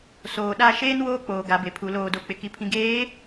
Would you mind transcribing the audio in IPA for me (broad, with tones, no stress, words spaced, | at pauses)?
soː˨ɗa˦˨ ʃeː˦n woː˦k͡poː˨ ɡa˨˦be˨pʰu˨˦ loː˨do˨k͡pɪ˨ ki˨pʰĩ˨ɡeː˨˦